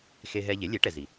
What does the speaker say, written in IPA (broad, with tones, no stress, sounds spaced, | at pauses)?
x e˧ ɦ ɛ˧ ʎ e˩˥ lʲ e˩˥ ʈ ɛ˩ z i˩